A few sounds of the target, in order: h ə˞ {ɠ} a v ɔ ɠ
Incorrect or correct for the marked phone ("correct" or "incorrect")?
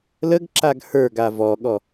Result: incorrect